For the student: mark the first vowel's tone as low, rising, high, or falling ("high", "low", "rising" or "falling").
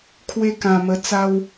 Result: high